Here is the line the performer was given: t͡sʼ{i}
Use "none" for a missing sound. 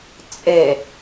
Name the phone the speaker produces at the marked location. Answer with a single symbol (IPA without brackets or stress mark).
e